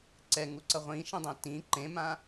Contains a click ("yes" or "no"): yes